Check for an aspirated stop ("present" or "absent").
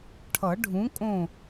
present